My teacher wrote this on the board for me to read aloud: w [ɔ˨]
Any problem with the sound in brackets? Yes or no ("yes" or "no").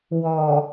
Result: no